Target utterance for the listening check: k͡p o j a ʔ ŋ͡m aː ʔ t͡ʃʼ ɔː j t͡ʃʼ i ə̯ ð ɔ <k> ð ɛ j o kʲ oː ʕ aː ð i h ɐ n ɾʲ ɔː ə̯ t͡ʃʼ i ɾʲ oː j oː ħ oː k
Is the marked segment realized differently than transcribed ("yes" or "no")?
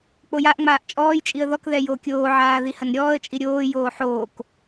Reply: no